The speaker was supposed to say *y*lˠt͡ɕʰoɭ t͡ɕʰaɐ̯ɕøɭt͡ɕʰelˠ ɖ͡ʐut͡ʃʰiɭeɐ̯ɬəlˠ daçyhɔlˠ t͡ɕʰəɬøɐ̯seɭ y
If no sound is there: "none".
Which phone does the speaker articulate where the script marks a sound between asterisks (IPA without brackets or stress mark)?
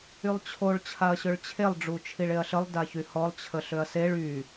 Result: y